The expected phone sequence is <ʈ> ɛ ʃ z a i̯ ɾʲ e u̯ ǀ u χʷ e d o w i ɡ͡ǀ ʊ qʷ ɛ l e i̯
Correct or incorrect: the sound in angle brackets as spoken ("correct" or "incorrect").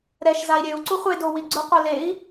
incorrect